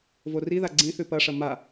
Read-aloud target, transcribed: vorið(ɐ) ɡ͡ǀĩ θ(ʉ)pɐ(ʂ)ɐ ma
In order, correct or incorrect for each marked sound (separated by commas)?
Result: incorrect, correct, correct